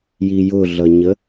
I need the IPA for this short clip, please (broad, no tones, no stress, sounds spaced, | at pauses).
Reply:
j i j ʊ ɮ ʌ ɲ ə